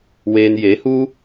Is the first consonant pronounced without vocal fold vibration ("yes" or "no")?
no